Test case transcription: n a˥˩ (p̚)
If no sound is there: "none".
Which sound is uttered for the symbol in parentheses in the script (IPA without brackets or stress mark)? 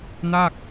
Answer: k̚